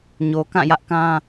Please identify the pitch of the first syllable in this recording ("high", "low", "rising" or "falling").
low